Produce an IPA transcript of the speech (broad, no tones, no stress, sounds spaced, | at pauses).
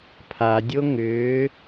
pʰ a dʲ o ŋ ʏː